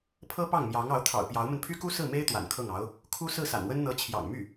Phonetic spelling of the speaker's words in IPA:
pʰ ɤ˥ p ɑ˥˩ ŋ m j ɑ˧˥ ŋ ɑ˧˥ ʊ̯ t̪ʰ ɑ̰˨˩ ʊ̯ p j ɑ˧˥ ʊ̯ m ə˧ n pʰ y˥ k u˥ s ɹ̩˥˩ m e˥ ɪ̯ t̪ w a̰˨˩ n kʰ ɤ˥˩ ŋ ɑ˧˥ ʊ̯ | kʰ u˥ s ɹ̩˥˩ s a̰˨˩ n w ə˥ n n̪ ɤ˧˥ t͡ɕʰ j ɑ̰˨˩ ŋ m y˥˩

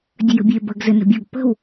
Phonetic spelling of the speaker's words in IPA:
dʲ ə j ə̤ bʲ e b ə ɡ z ɘ n ə̤ bʲ o ɡ p ə̤ w

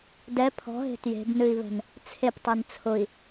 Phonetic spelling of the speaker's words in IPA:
d ɛ pʰ ɔ̤ ɦ e̤ t j e̤ b n ɨ i̯ β ɛ̤ n | t͡sʰ e p tˤ ɛ n t͡sʰ ʊ i̯

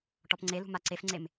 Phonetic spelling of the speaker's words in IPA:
ʈ ɔ p ŋ͡ǀ e l ṳ m a ǀ e f ŋ͡ǀ e m

